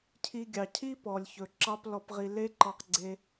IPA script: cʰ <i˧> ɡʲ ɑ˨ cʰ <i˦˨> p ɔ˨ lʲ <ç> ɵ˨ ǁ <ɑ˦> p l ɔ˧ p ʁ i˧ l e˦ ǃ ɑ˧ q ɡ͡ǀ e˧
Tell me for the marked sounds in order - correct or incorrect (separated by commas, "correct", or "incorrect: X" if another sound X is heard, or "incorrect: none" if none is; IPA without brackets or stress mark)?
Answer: correct, incorrect: i˦, correct, correct